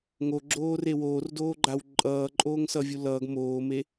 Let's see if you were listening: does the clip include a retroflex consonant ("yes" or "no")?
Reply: no